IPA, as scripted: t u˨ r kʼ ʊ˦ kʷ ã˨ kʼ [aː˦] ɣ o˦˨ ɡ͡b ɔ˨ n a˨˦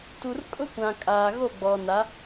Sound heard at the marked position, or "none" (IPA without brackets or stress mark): aː˨